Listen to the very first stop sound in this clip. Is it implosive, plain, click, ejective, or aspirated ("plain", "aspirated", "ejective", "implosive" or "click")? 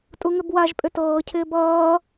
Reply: ejective